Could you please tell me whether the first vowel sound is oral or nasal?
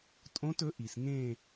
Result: nasal